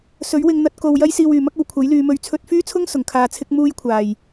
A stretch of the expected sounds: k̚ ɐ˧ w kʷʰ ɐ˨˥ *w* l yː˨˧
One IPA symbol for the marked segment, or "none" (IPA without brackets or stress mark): j